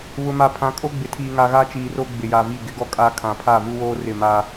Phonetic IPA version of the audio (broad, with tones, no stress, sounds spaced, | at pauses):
β ʊ˨ m a˨ pʰ ã˨˦ kʼ o˦ ɡ͡b ɪ˨ tʰ iː˨ ŋ a˨ ɣ a˦ t͡ʃ iː˨ r o˦ ɡ͡b ɪ˨ j a˨ v i˦˨ ɡ ɪ˦ ɡ ɔ˦ kʼ a˦ kʰ ã˨ pʰ a˦˨ v u˦ w oː˦ r ɪ˦˨ m a˦